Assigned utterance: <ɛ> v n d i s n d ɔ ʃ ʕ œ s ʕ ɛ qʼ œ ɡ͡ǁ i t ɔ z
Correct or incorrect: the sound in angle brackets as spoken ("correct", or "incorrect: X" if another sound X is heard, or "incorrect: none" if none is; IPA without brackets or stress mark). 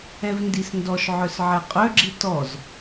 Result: correct